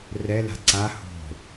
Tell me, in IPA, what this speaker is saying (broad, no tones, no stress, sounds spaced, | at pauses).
r ɛ l a̤ ǀ a h o̤